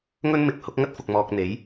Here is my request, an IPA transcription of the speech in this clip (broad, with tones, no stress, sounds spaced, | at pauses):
ŋ ɵ˧ n m ɪ˨˥ k̚ h ʊ˨˥ k̚ ŋ ɐ˥ t̚ f ʊ˨ k̚ m ɔː˨ k̚ n̪ e˨˧ j